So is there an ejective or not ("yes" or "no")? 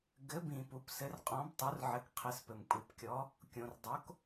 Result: yes